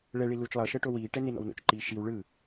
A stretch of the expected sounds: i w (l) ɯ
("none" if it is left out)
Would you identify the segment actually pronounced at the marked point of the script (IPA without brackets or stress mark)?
ɭ